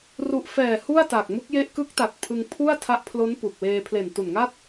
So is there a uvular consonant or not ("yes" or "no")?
no